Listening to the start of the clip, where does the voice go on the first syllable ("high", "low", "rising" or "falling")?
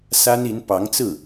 high